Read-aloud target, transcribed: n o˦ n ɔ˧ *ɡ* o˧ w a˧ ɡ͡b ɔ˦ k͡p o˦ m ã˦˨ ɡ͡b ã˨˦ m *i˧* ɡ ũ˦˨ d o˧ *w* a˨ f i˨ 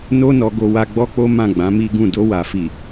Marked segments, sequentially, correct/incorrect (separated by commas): correct, incorrect, correct